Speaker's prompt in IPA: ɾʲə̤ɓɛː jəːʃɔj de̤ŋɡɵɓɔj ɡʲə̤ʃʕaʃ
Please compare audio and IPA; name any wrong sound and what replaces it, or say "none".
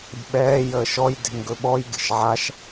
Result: none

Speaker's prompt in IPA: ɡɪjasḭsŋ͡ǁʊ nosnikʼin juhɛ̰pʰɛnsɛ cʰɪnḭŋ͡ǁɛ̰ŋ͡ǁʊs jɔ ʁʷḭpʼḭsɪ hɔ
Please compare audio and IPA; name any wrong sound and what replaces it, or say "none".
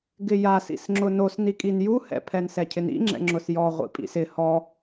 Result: none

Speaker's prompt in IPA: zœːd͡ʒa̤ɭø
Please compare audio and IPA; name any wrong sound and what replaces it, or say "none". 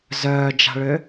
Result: none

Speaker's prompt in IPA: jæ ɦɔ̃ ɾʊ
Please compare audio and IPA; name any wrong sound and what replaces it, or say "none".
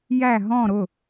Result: none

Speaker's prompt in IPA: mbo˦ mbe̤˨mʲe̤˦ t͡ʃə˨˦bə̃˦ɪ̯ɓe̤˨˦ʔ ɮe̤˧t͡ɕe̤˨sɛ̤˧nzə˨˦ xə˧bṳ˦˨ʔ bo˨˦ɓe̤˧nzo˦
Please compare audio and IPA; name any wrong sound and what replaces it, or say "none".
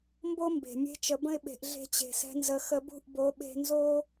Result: none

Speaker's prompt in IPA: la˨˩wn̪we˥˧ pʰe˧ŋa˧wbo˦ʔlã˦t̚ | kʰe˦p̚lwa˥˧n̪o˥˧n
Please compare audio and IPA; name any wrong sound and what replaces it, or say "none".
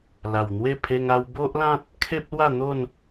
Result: none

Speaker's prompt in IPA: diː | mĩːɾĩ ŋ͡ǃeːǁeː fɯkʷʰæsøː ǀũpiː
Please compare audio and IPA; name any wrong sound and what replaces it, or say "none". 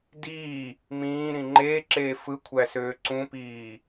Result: none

